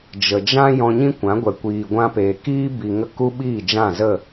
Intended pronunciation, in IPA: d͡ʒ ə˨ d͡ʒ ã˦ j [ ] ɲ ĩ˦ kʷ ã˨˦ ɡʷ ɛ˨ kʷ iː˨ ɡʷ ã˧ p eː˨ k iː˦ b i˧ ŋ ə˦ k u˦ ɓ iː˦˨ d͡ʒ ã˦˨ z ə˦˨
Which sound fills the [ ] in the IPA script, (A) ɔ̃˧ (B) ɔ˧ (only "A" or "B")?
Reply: A